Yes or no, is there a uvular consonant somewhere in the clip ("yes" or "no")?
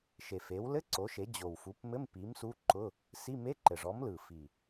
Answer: no